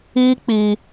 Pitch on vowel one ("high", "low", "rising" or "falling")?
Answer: high